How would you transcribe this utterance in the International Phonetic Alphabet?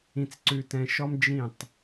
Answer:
ĩ˧ t͡s ǀ ʉ˧ t ɛ̃˧ ʃ ɔ˥ m d͡ʒ ĩ˥˩ tˤ

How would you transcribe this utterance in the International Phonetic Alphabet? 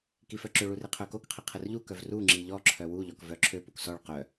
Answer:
k i f œ ǁ ø ɭ u r i qʰ œ k o k qʰ i qʰ ə r ʎ u k œ v r u ŋ͡ǁ i ʎ ɔ ǁʰ œ w u ʎ ɔ k v œ ǁʰ ø p u k s ɔ ɭ q œ

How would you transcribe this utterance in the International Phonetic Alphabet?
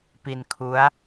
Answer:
p i˧ n kʰ u˦˥ a̯

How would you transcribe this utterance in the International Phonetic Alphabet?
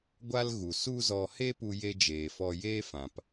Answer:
ɡʷ a˦ l ɣ u˨ s u˦ z ɔ˧ h e˦ p u˦ j e˦ d͡ʒ eː˨ f ɔ˧ j eː˦ f ã˨ p

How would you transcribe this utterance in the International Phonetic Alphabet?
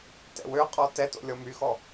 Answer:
t ɛ̰ w ø qʼ ɔ t ɛ t o̰ lʲ ɔ m y x ɔ

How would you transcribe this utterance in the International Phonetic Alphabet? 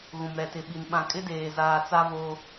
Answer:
ɣ ũ˨ m ɾ ɛ˨ t ɪ˨ ɓ i˨ n ɓ ã˨ kʼ ɪ˦ d eː˨ z aː˨ t͡s a˦ v oː˦

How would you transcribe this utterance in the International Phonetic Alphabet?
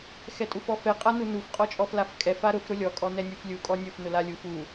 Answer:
x ɛ tʼ u f ɔ f ɛ qʼ a n u n u f qʼ ɔ t͡ʃʼ ɔ f l a f kʼ ɛ f a ɾ ʊ f ɾ ʊ lʲ ɔ kʼ ɔ n ɛ nʲ u f lʲ u kʼ ɔ nʲ ʊ f n ʊ l a lʲ u f u

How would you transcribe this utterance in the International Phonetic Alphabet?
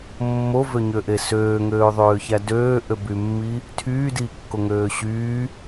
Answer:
mː o v ø ɲ ø ʔ e s øː ŋ øː ðˤ øː ç æ d øː ʔ ø b y mː i | tʰ yː d iː kː o ŋ øː ɕ yː

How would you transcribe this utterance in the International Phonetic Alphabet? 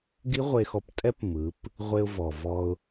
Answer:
ɡ i˦˥ ʁʷ e˧ x ɔ˧ p tʼ ɛ˦˥ p m ɯ˩˧ p | ʁʷ e˧ ʊ̯ v ɔ˩ v ɔ˧ ʊ̯

